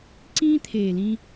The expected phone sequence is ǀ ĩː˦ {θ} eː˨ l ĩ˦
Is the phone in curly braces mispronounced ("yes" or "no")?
yes